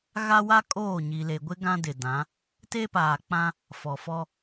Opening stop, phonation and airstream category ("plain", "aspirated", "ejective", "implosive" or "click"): ejective